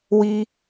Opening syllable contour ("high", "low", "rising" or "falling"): high